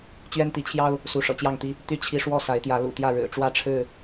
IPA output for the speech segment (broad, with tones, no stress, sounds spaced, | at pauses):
t͡ɕ ɥ ɛ˦ n t̪ i˨˦ t͡ɕʰ j ɑ˦ ʊ̯ | s u˨˦ ʂ ɤ̰˨˩ t͡ɕ j ɑ˥˨ ŋ t̪ i˦ | t̪ y˥˨ t͡ɕʰ i˦ ʂ w ɔ˥˨ s a˨˦ ɪ̯ t̪ j ä˨˦ l ṵ˨˩ t̪ j ä˥˨ ɻ ɻ̩˨˩ ʈ͡ʂ w ä˦ ʈ͡ʂʰ ɻ̩˥˨